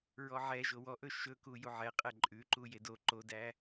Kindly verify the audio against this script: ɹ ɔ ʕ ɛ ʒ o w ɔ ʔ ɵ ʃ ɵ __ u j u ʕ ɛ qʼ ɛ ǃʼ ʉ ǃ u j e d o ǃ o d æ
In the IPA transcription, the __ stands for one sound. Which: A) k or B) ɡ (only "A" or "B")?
A